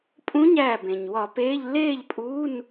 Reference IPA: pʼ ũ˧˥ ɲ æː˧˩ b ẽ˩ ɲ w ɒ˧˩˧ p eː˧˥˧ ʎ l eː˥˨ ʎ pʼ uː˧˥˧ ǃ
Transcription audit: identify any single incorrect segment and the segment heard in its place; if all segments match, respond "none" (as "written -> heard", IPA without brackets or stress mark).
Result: ǃ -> n